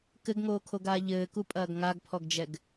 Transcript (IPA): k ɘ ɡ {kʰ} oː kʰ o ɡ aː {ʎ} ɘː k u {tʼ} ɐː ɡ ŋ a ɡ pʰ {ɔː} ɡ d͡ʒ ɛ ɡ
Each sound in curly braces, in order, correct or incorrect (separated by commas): incorrect, correct, incorrect, incorrect